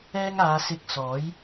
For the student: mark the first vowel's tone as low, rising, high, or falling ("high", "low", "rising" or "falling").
high